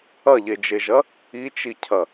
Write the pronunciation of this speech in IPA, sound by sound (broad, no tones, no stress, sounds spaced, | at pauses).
ɐ ʎ e d͡ʒ e ʒ ɐ | i t͡ʃ i cʰ ɐ